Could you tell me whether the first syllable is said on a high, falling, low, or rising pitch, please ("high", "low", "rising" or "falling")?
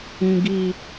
low